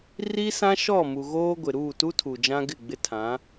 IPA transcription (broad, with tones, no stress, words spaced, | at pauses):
ri˦sã˦ʃɔ˦˨ mu˨ɣoː˦ɡʷɪ˨ ɾuː˦˨tu˦tʰu˨ d͡ʒã˦ɡɪ˦˨ɡ͡bɪ˦tʰã˨˦